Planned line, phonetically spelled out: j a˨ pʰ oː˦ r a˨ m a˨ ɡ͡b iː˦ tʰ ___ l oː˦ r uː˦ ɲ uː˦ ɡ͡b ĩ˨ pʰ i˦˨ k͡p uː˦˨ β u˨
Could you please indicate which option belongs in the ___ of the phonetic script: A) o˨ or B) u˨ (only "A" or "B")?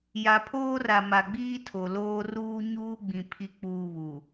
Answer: A